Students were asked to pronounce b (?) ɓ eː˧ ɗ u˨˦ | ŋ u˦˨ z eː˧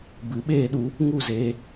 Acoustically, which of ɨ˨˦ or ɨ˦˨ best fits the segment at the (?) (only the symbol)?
ɨ˨˦